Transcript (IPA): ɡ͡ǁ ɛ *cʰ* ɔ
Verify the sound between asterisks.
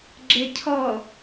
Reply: correct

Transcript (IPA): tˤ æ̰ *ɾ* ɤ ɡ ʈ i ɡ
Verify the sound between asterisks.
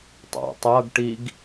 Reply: incorrect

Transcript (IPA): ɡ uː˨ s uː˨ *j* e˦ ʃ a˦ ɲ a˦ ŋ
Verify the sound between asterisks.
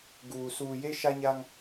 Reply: correct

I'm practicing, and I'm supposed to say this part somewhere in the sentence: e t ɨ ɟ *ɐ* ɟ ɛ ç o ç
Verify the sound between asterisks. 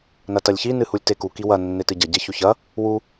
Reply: correct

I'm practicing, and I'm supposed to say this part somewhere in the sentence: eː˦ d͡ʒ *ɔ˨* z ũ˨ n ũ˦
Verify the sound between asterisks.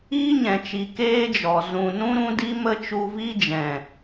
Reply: correct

